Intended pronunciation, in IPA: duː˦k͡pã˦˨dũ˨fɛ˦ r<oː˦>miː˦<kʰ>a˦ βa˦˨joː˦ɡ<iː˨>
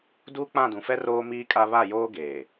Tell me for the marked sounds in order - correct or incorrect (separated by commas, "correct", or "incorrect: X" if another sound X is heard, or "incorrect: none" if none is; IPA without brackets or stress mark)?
correct, incorrect: kʼ, incorrect: eː˨